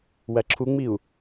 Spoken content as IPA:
wæǁʰuŋ͡miu̯

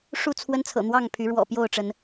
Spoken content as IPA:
ʂu˥˨t͡sʰwə˦nt͡sʰɤ̰˨˩ n̪wɑ˥˨ŋpʰy˨˦ɻwɔ̰˨˩ pjo˥˨ʊ̯ʈ͡ʂə˨˦n

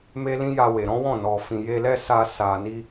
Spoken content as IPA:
me˦lĩ˦ja˧ we˨ɾɔ̃˨˦wɔ̃˦˨ nɔ˨fĩ˨je˧lɛ˦ sa˧sa˨ni˧

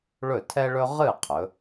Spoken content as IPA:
ɭɵ˥˩tʰɛ˥ɭɵ˥ ʁɨ˥˩ qʰɵ˩˥

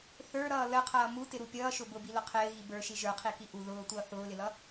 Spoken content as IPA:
θə˞ɾʌː ləqʰʌː mutɪɾu pʲʌːʃʊ bʊbilʊ qʰɪːɣi bə˞ʃi ʒə˞qʰiki ʔu ðʊːtʷʌː θʊːlɪlʌ

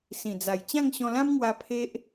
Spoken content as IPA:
sĩ˨˩d͡za˨˩j t͡ɕã˥˧ŋɕɔ̃˧lã˦mŋwa˧ pʰe˦ʔ

